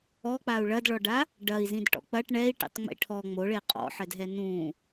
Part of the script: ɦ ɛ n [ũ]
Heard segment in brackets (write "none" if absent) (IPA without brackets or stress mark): ũ